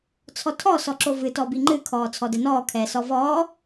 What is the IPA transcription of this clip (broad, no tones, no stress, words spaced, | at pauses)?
t͡sʰɔtʰɔ sɔǁovɨ tɔbiŋ͡ǃɨ kʰɔːt͡sʰɔdɛnɔː kʰɛːsɔvɔː